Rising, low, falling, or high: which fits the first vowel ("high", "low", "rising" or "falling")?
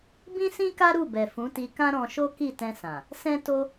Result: high